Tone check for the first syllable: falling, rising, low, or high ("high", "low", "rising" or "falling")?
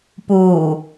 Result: low